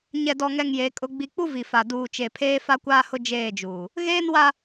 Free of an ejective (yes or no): no